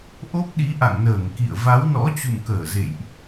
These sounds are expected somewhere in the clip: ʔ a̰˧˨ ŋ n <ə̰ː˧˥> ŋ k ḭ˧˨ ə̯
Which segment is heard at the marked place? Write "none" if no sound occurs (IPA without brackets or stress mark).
əː˧˩